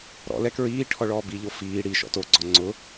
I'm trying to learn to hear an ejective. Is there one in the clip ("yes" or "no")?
no